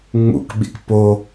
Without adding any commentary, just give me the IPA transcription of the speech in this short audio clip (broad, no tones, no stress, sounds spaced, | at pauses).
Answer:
ŋ͡m ṵ k ɓ ḭ k p o